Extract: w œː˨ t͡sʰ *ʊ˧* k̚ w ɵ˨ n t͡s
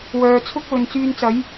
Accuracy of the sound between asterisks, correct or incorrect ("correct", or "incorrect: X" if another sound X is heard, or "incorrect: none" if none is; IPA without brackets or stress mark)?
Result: incorrect: ʊ˥